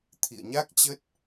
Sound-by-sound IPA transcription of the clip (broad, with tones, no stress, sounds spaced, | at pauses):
t̪ʰ ḭ˧˨ ə̯ ɲ a˦˥ k̚ t͡ɕ ə˦˥ t̚